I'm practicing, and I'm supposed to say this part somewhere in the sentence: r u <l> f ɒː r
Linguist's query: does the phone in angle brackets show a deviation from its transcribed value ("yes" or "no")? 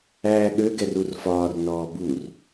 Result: yes